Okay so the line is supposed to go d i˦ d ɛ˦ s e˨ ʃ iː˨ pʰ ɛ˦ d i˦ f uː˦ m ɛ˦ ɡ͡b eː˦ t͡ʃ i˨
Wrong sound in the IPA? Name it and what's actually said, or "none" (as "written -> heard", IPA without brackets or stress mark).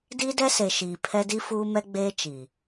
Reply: none